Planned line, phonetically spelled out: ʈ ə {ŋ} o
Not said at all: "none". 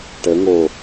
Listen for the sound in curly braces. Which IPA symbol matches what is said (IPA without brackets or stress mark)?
ŋ